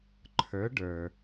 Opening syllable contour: rising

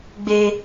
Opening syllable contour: high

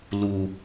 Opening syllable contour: low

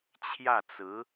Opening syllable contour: falling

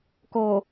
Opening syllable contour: low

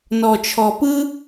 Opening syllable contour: low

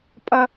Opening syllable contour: high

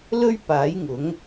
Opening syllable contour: high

